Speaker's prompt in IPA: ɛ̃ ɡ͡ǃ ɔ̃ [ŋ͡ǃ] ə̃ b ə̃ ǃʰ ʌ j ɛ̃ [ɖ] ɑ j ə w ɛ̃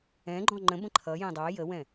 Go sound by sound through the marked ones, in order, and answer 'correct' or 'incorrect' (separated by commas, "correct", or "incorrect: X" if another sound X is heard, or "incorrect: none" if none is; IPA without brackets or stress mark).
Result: correct, incorrect: dˤ